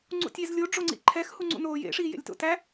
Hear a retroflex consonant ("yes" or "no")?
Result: yes